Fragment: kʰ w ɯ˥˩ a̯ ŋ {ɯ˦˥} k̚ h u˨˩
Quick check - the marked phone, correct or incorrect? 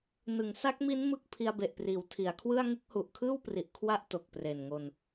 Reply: correct